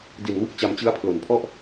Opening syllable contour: low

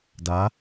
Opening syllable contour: rising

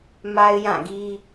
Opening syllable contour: high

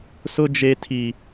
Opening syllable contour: high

